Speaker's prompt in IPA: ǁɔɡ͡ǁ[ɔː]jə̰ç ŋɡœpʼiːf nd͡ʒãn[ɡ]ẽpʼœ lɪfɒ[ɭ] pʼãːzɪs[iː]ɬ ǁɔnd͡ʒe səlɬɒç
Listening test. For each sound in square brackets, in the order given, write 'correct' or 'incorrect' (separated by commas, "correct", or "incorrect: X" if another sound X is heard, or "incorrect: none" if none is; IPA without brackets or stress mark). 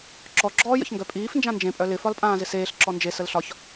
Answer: correct, incorrect: d͡ʒ, incorrect: l, incorrect: eː